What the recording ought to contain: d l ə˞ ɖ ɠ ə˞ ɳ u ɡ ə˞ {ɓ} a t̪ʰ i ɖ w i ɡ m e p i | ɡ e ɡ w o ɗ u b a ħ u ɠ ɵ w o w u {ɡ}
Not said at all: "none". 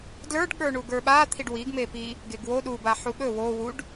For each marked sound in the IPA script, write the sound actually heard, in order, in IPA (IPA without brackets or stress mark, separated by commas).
ɓ, ɖ